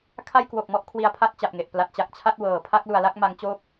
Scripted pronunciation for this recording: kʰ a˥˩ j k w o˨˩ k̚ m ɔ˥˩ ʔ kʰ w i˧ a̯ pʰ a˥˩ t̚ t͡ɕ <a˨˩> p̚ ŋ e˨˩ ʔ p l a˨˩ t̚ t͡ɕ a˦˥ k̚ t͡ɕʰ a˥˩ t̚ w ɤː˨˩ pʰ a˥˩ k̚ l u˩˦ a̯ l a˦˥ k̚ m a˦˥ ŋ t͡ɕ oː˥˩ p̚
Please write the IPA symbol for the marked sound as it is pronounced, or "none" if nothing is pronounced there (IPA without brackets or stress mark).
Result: a˨˩